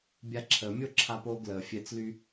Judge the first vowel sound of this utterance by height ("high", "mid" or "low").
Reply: low